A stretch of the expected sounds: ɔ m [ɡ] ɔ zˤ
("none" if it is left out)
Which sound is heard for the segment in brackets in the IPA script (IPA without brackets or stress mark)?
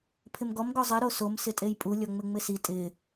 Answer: ɡ